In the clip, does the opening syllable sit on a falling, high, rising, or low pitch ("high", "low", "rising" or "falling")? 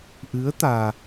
rising